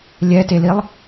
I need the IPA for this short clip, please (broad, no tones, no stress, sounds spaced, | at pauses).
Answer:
lʲ ɛ t e l i lˠ